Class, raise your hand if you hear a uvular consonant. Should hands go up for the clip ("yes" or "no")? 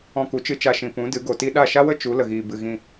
no